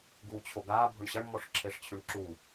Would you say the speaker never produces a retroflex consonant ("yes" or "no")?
no